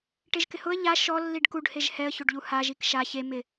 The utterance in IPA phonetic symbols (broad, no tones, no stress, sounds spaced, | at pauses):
ʈ e ʒ k ɪ h ʊ ə̯ ʎ a ʃ ɔ lː i ɖ k u ɖ h e ʒ h ɛ ə̯ ç o ɖ ʎ u h a ʒ i k ʃ a ç e m ɪ